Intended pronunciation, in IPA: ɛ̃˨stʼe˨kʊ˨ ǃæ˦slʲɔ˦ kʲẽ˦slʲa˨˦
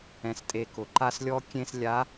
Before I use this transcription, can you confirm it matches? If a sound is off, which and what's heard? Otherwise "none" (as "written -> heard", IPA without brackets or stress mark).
æ˦ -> a˦